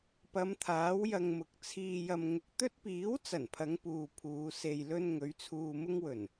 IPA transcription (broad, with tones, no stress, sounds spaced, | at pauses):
p ɐ˨˧ m t̪ʰ aː˨˥ w j ɐ˧ ŋ m ʊ˨ k̚ t͡sʰ iː˧ j ɐ˧ m ŋ ʊ˧ k̚ t̪ ɵ˥ t̚ p iː˨˥ w t͡s ɐ˨˩ n pʰ ɐ˨˧ ŋ p uː˨ pʰ uː˨˧ s e˧ j l ɵ˥ n ŋ ɵ˨˥ ɥ t͡sʰ uː˧ m ʊ˥ ŋ w ɵ˨˩ n